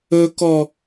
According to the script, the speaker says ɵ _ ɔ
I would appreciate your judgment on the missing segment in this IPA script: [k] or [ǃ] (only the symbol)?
k